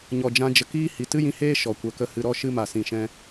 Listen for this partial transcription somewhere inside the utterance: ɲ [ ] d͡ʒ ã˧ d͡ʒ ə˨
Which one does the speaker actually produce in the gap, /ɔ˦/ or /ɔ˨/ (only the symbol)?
ɔ˨